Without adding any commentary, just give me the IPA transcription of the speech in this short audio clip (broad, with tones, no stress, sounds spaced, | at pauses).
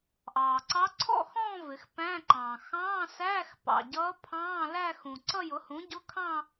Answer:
ʔ ɑː˩ ǀ ɑ˧˥ ǀʰ ɔ̰˥˧ x ɔ̃ː˥˧ v ɪ˩˧ x p æ̃˧˥˧ ǃ ɑ̃ː˩ x ɑ̃ː˧˥˧ s æː˧˥˧ x p ɑ̰˩ ɟ ʌː˧˥ pʰ ɑ̃ː˧˥˧ l æ˥˧ x ũ˩ ǀ ʌ˥˧ j ʊ˩˥ h ũ˩˥ ɟ ʊ˧˥˧ kʰ ɑ̃˥˧